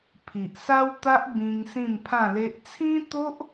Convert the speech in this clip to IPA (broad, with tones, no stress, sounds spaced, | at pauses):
pʰ i˨ ʔ s a˦ w t̪ a˦ ʔ b ĩ˧ ŋ s ĩ˥˧ m pʰ ã˥˧ l e˦ ʔ t͡sʰ ĩ˦ t̪ o˦ ʔ